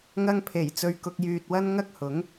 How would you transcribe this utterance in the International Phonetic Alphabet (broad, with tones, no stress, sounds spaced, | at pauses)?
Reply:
ŋ ɐ˧ ŋ pʰ e˨˩ j t͡s ɵ˨ ɥ k ʊ˧ k̚ j yː˧ t̚ w ɐ˥ n ŋ ɐ˥ k̚ h ʊ˨˥ ŋ